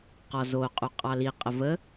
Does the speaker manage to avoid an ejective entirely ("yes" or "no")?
no